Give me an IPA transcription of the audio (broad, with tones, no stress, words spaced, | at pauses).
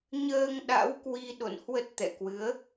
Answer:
ɲəː˧ŋɗa̰˧˥w kwi˧ɗo̰˧˨nhwə˦˥t̚ t̪ɛ̰˧˨ kwɨ˨˦ə̯